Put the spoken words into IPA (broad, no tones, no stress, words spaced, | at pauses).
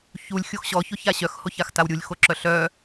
çulʲ xʲoxɕɔ çoçaɕœx hoçaxtawɾʲulʲ xoǁœɬœ